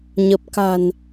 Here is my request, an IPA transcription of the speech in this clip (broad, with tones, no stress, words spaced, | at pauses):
ɲə˨˩p̚ka̤˨˩n